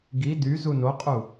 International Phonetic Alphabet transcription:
ɡ i d y z u n o qʼ u

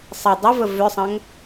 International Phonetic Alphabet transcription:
sˤ ə dˤ ʌ v ə v ʏ sˤ ɐ̃ ŋ

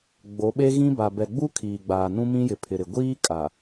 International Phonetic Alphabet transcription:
ɡ͡b o˨˦ ɓ e˦ ɣ ĩ˦ b a˨ b ɛ˨ ɡ͡b u˦ kʰ iː˨ ɡ͡b aː˨ n ũ˦ m ĩ˦ j ɪ˨ pʰ ɪ˨ ɾ ɪ˨ ɡʷ iː˦ kʼ a˨

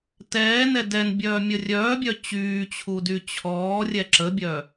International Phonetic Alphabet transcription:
t ɛː n ɛ d ɛ n bʲ œː mʲ ə rʲ œː bʲ œ t͡ɕ yː t͡ɕʰ u d y t͡ɕʰ ɔː rʲ ɛ ǁ ə bʲ œː

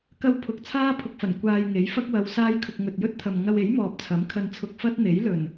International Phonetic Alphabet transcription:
k ɐ˧ w pʰ ʊ˨˥ k̚ t͡sʰ aː˥ pʰ ʊ˧ k̚ f ɐ˨˩ n kʷ aː˧ j ŋ e˨˥ j f ɐ˥ k̚ w ɐ˨˧ w s aː˥ j kʰ ʊ˧ k̚ ŋ ɵ˨ t̚ j ɵ˥ t̚ t̪ʰ ɐ˨ m ŋ ɐ˧ w e˨˥ j m ɔː˨ p̚ t͡sʰ ɐ˨˥ m kʰ ɐ˧ n t͡sʰ ʊ˧ k̚ f ɐ˥ t̚ n̪ e˨˥ j l ɵ˨˩ n

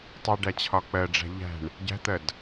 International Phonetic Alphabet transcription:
tˤ u ɖ æ t͡ɕʰ ɒ k͡p ɜ ɖ͡ʐ æ̤ ʎ æ̤ ɳ | ɟ æ̤ t̪ ɜ d

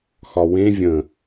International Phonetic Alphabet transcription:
x ɒ w ẽ vʲ ə̃

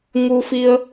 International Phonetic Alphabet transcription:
ŋ u˧ f i˧ ə̯

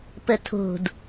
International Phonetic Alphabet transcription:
p ə tʰ o̤ d

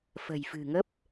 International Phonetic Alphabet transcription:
f ə̤˨˩ j f ɨ̤˨˩ ŋ ə˦˥ p̚

